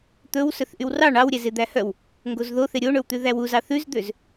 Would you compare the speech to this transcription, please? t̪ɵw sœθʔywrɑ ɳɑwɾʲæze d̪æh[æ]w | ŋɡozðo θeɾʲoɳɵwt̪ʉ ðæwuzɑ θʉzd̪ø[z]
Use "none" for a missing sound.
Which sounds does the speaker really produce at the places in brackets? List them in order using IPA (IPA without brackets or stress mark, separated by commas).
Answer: œ, z